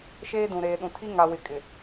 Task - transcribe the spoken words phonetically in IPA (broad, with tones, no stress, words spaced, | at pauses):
ʃeː˦dũ˨ɾeː˨ɗũ˨ tʰi˦ŋa˨wɪ˨ kʼɪ˨